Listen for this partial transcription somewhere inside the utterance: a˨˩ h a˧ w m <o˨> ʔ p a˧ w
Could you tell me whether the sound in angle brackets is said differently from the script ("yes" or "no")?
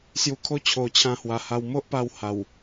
yes